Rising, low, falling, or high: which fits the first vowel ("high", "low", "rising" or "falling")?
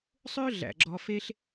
high